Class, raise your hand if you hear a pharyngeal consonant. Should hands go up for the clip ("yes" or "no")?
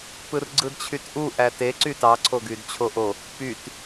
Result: no